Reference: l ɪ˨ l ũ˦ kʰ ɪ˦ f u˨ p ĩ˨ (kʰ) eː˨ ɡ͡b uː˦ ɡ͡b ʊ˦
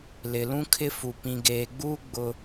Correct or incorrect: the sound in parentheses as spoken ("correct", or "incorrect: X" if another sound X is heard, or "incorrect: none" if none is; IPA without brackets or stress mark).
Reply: incorrect: ɡ